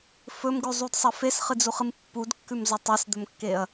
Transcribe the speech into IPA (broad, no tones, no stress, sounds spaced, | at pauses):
f ɵ m ɡ ʉ zˤ u d sˤ ɐ f e s χ ɨ d͡z u χ ɨ m pː u d kː ʉ m z o tˤ e s d̪ ɵ m kː e ɐ̯